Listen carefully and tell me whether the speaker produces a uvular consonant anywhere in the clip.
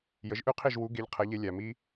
yes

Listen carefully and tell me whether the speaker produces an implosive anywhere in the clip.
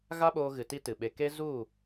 yes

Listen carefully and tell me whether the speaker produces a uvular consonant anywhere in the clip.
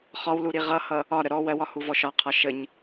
yes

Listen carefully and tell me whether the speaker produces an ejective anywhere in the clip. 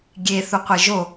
no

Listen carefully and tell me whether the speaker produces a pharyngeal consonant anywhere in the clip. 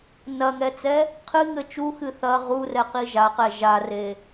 no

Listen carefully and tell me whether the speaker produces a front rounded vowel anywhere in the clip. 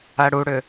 yes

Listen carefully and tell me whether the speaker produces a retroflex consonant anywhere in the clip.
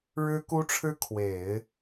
yes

